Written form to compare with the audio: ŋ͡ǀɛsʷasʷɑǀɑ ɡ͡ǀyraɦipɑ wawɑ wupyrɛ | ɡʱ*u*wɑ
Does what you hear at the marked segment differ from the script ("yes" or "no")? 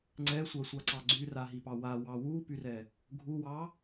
no